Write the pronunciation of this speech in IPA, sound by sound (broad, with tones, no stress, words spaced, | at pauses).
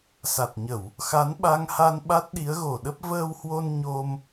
sa˨˩t̚ɲə˧˩˨w | xa˨˦nɓa˧ŋha˧n ɓa˦˥t̚ɗi˨˦ə̯ɣo˧˩ɗə˦˥p̚ vəː˧whwo˧n ɲo˧m